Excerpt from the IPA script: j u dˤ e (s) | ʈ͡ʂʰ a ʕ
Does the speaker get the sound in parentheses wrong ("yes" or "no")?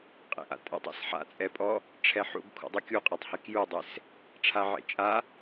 no